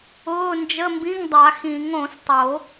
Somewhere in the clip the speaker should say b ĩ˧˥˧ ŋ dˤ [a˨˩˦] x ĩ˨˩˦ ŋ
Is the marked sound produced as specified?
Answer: yes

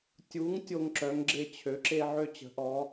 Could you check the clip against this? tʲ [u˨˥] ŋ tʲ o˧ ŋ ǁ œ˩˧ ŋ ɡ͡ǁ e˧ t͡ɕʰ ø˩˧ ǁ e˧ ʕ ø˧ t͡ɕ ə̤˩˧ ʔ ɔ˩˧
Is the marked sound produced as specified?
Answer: yes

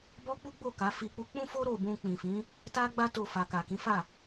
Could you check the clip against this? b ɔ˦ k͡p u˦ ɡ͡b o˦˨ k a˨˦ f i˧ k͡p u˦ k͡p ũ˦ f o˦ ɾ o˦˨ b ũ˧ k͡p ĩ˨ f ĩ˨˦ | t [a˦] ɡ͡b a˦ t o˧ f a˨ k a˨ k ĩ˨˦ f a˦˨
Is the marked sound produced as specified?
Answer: yes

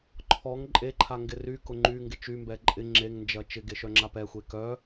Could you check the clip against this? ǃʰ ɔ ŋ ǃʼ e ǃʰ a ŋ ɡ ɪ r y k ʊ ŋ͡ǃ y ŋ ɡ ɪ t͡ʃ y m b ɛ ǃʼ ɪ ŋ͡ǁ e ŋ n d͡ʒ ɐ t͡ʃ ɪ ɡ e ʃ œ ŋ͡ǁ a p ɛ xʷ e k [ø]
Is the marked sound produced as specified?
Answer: no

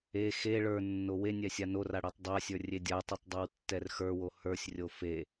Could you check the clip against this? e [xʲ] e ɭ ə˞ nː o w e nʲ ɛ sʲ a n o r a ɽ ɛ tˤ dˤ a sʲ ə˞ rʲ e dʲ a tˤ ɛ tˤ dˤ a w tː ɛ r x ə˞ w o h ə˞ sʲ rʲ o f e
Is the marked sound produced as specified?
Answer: no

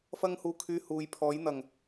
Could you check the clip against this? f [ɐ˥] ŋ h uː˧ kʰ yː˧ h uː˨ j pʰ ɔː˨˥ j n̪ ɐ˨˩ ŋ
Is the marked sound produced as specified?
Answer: yes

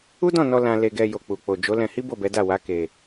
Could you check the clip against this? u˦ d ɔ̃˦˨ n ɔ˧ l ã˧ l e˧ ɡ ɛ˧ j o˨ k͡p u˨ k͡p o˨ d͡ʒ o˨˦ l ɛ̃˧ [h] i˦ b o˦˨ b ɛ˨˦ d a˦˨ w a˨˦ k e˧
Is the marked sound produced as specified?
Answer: yes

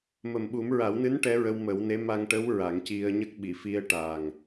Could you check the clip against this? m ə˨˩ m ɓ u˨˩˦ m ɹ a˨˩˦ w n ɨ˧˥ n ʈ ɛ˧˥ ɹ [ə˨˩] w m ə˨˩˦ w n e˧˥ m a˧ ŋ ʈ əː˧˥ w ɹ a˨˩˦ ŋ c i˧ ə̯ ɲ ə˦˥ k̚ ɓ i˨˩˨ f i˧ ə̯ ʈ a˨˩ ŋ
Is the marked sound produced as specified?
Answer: no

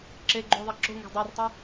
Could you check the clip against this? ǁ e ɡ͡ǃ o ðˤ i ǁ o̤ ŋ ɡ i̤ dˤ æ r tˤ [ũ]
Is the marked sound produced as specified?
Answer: no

